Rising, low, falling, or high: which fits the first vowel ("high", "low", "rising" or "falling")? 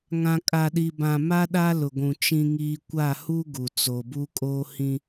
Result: low